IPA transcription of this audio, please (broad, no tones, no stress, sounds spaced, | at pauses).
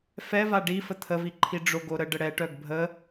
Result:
f ɛ v a ɖ i f ə t̪ʰ ə v i ǃʰ i ɖ͡ʐ o ɡ o ɾ ə ɖ ə ɽ ɛ ʈ œ ɡ bʱ ə